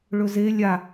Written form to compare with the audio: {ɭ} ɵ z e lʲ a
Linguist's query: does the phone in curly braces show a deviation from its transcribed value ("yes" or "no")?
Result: no